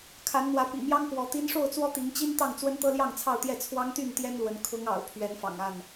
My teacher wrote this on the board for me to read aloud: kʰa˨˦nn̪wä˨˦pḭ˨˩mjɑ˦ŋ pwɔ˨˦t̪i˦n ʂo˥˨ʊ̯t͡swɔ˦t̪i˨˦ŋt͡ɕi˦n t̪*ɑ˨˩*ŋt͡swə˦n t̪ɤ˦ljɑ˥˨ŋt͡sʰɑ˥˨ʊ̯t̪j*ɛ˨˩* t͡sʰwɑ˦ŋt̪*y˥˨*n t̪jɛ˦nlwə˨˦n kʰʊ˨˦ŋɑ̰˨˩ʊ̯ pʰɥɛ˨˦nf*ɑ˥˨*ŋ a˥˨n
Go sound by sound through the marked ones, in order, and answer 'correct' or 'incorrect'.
incorrect, incorrect, correct, incorrect

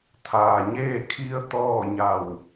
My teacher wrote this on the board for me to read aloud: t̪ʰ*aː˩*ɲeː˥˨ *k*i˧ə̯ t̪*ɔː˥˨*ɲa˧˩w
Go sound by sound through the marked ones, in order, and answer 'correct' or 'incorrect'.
correct, incorrect, correct

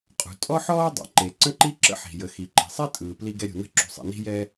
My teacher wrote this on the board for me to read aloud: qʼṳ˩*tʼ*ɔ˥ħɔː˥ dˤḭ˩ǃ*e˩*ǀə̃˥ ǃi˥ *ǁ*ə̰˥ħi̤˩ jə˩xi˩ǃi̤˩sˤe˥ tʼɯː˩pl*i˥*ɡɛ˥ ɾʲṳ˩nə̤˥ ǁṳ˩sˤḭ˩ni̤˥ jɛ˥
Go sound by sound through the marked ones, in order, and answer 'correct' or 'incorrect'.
correct, correct, correct, correct

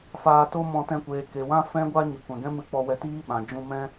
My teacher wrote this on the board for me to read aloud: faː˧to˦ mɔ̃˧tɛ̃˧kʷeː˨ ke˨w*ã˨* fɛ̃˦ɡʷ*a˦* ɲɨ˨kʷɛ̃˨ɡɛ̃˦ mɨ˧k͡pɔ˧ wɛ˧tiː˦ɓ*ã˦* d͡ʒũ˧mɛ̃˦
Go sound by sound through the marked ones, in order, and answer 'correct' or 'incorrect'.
incorrect, correct, incorrect

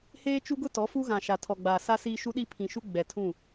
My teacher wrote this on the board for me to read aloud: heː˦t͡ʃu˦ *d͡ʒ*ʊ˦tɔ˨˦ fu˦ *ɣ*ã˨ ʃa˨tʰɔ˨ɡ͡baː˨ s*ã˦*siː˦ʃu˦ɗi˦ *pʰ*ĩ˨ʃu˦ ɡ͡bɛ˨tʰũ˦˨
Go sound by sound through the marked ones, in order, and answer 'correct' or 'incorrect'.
incorrect, correct, incorrect, correct

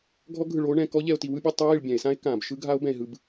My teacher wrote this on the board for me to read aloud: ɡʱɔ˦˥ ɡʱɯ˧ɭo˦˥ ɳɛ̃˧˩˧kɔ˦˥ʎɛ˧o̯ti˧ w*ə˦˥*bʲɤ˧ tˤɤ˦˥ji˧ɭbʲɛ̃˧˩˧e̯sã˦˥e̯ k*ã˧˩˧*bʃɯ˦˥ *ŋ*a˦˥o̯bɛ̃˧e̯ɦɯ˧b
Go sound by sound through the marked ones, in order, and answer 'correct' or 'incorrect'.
incorrect, correct, incorrect

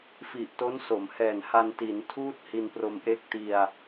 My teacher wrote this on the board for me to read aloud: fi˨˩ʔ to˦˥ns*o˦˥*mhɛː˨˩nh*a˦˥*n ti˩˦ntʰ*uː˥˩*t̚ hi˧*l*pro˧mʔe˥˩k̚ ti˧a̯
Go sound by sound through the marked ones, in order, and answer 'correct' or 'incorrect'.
incorrect, incorrect, correct, incorrect

